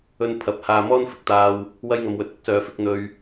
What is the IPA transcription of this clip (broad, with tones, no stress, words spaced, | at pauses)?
ɵ˧npʰɐ˨˥p̚ haː˧mɔː˥nfɪ˧k̚t̪aː˧w | wɐ˥jŋɐ˧mwɵ˧t̚ ʊ˥k̚sœː˨˧fɪ˨˥k̚ n̪ɵ˧ɥ